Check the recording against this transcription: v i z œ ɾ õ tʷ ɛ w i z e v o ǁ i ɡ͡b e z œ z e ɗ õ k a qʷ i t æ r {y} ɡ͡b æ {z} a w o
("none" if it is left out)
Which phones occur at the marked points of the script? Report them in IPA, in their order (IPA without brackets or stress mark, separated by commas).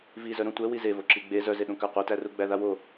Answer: u, ð